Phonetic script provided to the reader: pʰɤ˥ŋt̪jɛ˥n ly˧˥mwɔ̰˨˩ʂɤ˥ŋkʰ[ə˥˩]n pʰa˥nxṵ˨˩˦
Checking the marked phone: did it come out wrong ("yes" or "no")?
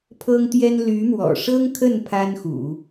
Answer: no